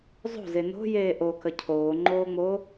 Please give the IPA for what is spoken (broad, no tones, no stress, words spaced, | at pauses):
zˤo̤ze no̤jeː ʔokə cʰoːŋ͡ǃoːŋ͡mo